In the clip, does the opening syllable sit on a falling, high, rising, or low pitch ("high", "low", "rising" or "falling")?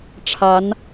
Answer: rising